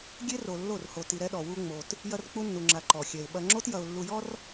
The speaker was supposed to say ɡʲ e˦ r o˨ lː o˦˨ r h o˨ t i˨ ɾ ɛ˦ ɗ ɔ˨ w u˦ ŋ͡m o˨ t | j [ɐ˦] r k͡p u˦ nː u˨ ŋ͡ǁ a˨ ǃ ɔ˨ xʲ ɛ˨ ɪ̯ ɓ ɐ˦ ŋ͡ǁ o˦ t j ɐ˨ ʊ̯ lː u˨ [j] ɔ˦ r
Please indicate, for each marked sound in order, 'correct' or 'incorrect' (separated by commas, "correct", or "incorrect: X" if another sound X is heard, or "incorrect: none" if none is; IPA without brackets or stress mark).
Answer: correct, correct